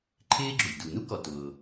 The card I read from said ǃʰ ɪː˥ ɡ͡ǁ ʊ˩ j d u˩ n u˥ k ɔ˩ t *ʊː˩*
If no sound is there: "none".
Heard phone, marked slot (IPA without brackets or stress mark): ʊː˩